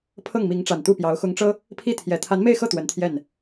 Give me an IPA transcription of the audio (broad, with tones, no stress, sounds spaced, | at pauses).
pʰ ɤ˥˩ ŋ m i˧˥ ŋ ʈ͡ʂ a˨˩ n t̪ u˥˩ p j ɑ˧˥ ʊ̯ x ʊ˧˥ ŋ ʈ͡ʂ ɤ˥ | pʰ i˥˩ t̪ʰ j ɛ˨˩ t̪ʰ a˧˥ n m e˥˧ ɪ̯ x ɤ˥˩ t̪ w ə˧˥ n t̪ʰ j ɛ˥˩ n